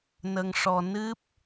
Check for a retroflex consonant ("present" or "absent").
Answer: present